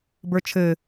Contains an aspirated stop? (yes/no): yes